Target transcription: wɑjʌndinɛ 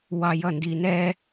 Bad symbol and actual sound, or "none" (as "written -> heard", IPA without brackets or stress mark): none